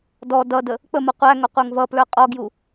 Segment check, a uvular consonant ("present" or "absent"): present